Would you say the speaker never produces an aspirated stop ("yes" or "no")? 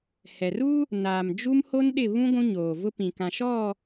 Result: yes